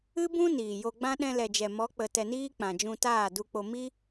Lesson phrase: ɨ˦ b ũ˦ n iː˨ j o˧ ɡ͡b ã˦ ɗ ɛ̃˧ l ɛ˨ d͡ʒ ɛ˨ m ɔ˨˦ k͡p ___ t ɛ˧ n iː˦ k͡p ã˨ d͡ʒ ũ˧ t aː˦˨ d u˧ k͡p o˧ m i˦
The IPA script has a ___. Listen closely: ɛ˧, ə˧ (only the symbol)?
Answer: ə˧